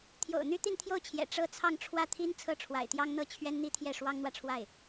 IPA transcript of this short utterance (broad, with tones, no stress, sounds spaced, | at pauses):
t̪ʰ j o̰˨˩ ʊ̯ n̪ y˥ t̪ i˥˧ n t̪ʰ j o˥˩ ʊ̯ t͡ɕʰ j ɛ̰˨˩ ʈ͡ʂ ɤ˥˧ t͡sʰ ɑ˥˧ ŋ ʈ͡ʂʰ w ä˥˩ t̪ʰ i˥ n t͡sʰ ɤ˥˩ ʈ͡ʂʰ w a̰˨˩ ɪ̯ t̪ j ɑ˥ ŋ n̪ ɤ˥ t͡ɕʰ ɥ ɛ˥ n n̪ i˥ t̪ʰ j ɛ˥˩ ʂ w ɑ˥ ŋ n̪ w ä˨ ʈ͡ʂʰ w a˥˩ ɪ̯